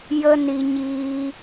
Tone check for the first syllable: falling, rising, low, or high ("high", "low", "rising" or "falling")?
high